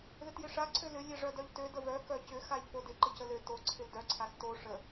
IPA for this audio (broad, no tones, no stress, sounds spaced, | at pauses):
ð ɪ t j ɪ ʂ a ǀʰ ø l ʏ lʲ e ʐ œ d œ ʎ t ø d ə v œ k œ c ʏ x a ʎ f o d ɪ ǃ ɪ c ə l ø t o ǀʰ ɪ l d œ ǀʰ a s t o ʂ ə